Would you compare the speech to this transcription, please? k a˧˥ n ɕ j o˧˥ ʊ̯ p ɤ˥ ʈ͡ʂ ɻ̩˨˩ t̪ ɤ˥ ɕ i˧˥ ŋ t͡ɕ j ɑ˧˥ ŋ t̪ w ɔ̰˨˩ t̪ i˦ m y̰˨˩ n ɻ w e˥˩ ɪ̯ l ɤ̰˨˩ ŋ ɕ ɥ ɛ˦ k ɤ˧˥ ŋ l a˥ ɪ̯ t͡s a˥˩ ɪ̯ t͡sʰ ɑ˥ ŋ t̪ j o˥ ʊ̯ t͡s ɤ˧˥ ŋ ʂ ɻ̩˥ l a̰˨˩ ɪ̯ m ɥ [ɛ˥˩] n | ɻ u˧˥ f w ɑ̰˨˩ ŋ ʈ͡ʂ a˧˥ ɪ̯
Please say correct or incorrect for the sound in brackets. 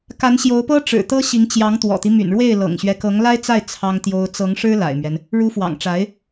incorrect